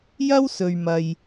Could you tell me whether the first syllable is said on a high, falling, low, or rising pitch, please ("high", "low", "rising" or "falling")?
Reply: high